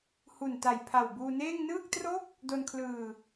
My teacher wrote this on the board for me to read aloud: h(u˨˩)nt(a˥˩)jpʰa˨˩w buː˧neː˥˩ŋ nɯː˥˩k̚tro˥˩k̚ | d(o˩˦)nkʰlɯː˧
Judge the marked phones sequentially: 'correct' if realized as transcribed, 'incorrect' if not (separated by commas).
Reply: correct, incorrect, incorrect